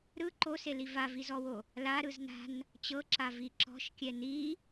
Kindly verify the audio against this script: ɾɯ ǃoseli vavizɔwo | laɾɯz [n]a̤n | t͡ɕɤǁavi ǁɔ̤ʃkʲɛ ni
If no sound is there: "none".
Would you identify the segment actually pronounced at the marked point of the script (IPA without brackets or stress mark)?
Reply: n